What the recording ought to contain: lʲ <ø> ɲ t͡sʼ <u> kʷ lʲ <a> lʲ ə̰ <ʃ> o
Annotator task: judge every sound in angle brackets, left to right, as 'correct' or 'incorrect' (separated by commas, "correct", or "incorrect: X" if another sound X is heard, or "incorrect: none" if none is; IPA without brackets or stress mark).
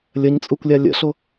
incorrect: ə, correct, correct, incorrect: ɬ